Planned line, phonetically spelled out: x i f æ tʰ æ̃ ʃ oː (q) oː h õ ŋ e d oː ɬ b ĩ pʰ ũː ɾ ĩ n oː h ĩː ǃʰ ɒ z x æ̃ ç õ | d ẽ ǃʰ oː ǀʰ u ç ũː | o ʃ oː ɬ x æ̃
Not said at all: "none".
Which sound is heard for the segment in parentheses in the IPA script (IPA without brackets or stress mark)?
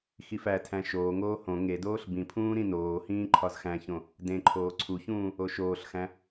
ŋ